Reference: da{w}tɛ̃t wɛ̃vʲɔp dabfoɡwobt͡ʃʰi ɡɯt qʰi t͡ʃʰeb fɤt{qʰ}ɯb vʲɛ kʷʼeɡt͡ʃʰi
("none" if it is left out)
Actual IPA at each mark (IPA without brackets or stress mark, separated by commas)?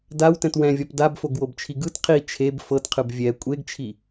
w, qʰ